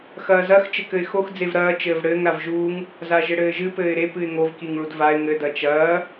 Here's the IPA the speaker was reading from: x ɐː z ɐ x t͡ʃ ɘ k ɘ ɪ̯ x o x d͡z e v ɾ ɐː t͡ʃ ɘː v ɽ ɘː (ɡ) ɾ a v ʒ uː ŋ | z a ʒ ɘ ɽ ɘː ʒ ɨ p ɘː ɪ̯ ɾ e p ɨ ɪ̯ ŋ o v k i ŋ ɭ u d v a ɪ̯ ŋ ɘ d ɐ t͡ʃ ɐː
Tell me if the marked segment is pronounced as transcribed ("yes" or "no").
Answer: no